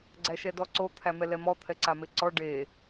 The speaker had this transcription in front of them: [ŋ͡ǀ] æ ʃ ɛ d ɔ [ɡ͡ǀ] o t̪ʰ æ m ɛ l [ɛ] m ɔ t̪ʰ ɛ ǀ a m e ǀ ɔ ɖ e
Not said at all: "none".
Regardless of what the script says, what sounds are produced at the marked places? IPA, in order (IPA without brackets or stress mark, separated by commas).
ɡ͡ǀ, ǀ, ɛ